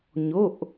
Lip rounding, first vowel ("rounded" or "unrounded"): rounded